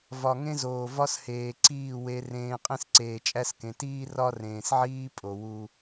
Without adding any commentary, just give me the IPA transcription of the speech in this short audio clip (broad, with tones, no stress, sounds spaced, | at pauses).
v ɒ˨ ŋ ẽ˦ z oː˨ v ɒ˦ s h eː˨ ǀ iː˦˨ w e˦ r ẽː˦ qʼ ẽ˦ s ǀ eː˨ t͡ʃʼ æ˦ s k ẽ˨ t iː˦ r ɒ˦ r ẽː˨ s ʕ iː˦ pʼ o˨ w u˦